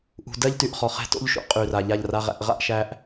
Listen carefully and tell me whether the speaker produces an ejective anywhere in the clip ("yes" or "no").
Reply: yes